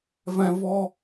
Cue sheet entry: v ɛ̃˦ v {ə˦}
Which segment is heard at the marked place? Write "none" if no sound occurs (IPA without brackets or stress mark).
ɔ˦